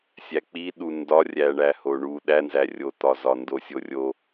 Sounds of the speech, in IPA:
sʲ æ k͡p i ɗ u n d ɒ rʲ æ ɳ æ h o ɳ u ɗ æ n z æ rʲ o t̪ ɒ z ɒ n d o sʲ o rʲ o

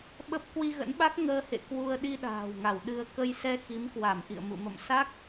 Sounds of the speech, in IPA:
ɓ ə˦˥ p̚ k w i˧ ɣ ə̰˧˥ n ɓ a˦˥ k̚ ŋ əː˧ h ḛ˧˨ k w u˧ ə̯ ɗ i˧ ɗ a̤ː˨˩ w ŋ a˧˩ w ɗ ɨ˧ ə̯ k ə˧ j s ɛ˧ x i˨˦ m k w a˧˩ m ʔ ḭ˧˨ ə̯ m ṵ˧˨ m ə̰˧˨ m s a˦˥ k̚

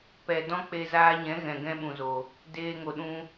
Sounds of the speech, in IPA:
p ɛ˨ d ɔ̃˦ k͡p e˧ z aː˧ ɲ ɛ̃˨˦ ɣ ɛ̃˨ ɡ ɛ̃˦ ɓ ũ˨ z o˨ | d eː˧ ŋ o˨ ɗ ũ˦

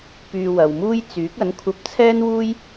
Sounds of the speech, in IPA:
p yː˧ w ɐ˨ w m uː˥ j t͡s yː˨˥ k̚ ɐ˨˥ n kʷʰ ɐ˧ p̚ t͡sʰ ɛː˥ n w uː˥ j

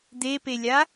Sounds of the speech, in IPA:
d̪ e p e lʲ a

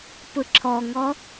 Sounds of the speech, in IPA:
p ɯ ǁʰ ɔ ŋ ɔ

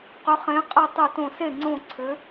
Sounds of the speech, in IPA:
q ʏ˩˧ χ ẽ˩˧ qʼ ə˧˩ tˤ o˧˩ t õ˧˩ s e˥˩ ŋ͡ǀ õ˧˩ ǀʰ ʏ˩˧

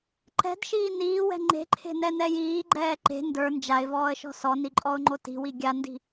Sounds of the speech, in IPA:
ǃ ɛ̤ d ʃ iː n iː w ɛ̤ ŋ͡ǃ e̤ ǃʰ e̤ n ɛ n ɛ j iː ɡ͡ǃ ɛː ǃ e̤ n d ə˞ n d͡ʒ a ɪ̯ v ɔː ə̯ ʃ ɔ̤ s ɔ n i ǃʼ ɔ ʊ̯ ŋ͡ǃ o t i̤ w i ɡʲ a n d i̤

